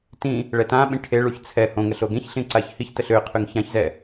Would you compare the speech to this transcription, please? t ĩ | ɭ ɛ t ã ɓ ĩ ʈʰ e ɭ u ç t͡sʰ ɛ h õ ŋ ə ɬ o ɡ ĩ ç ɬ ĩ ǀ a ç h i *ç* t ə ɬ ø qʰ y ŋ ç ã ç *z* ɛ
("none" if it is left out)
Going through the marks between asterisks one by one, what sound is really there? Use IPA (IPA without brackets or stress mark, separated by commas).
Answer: ç, z